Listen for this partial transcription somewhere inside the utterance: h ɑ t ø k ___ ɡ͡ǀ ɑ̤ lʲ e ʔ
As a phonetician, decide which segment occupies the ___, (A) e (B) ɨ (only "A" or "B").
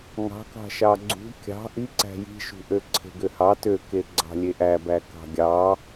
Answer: A